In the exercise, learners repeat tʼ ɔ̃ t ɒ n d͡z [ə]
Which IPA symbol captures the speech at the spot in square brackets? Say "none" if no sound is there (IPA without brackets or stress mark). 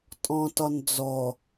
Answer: ɔ